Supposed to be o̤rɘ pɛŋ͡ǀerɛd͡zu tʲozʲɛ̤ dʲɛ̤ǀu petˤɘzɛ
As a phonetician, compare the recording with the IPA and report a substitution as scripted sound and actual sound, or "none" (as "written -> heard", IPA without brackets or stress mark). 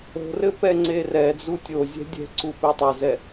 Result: none